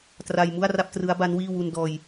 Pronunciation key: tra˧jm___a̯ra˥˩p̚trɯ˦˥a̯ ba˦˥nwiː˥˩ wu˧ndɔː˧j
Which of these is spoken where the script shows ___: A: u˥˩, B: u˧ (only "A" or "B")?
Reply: A